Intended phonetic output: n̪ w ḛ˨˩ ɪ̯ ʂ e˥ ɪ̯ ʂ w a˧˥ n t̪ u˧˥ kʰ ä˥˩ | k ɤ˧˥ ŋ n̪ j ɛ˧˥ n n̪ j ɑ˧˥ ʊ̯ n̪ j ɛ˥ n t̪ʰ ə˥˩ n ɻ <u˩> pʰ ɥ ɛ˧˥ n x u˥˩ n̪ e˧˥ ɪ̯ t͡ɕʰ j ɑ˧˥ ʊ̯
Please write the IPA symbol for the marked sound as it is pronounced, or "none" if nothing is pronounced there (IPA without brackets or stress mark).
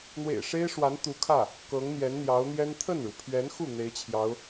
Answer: u˩